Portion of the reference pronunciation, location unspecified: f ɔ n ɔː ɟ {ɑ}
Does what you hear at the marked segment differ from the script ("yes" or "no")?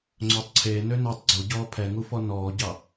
no